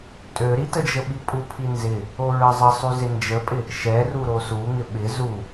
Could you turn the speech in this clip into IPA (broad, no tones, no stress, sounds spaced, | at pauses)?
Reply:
tʼ ø ɾ i t ə d͡ʒ ə ɓ i pʼ u pʰ i n z ɪ | o ɹ ə zˤ ə sˤ y z ɪ n d͡ʒ ə pʼ ɪ | ʃ ɛ r u ɾ o s u ŋ ɪ ɓ ɪ z u